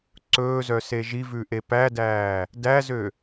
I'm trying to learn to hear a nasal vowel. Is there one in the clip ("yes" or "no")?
no